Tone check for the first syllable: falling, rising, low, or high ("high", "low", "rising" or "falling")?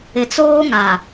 low